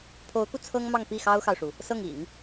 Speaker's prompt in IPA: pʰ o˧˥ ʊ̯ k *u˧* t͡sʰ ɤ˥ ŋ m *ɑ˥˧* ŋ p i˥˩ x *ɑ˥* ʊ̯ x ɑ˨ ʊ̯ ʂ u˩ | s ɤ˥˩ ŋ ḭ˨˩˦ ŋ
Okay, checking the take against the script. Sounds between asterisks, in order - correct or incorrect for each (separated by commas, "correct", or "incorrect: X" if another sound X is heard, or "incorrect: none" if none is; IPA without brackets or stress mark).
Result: correct, correct, correct